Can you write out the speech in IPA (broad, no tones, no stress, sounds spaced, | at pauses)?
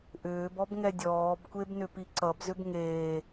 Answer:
ʔ ʏː b ɔ b ŋ ɛ dʲ ɔː b kʷ e b n ʏ p i ǀ ʌ b z ʏ b ŋ eː